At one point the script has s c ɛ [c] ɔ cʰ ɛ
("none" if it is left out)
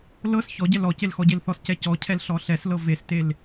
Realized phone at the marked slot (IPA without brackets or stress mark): c